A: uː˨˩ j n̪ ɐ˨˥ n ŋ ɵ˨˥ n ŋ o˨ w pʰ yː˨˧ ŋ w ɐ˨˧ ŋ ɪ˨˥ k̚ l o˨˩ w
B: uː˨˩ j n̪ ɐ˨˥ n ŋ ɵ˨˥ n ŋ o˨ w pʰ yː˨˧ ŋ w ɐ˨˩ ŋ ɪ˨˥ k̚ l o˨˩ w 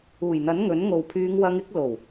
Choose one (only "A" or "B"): A